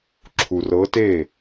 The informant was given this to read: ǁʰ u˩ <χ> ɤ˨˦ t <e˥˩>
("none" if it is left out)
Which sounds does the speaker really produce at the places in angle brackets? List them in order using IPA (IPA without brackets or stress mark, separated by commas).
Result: r, e˥˩